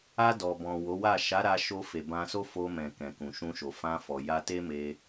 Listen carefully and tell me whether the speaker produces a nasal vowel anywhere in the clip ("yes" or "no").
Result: yes